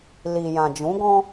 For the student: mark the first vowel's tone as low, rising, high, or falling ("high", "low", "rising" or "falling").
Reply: low